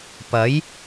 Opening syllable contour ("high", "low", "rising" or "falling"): rising